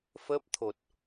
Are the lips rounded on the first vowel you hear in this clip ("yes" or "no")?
no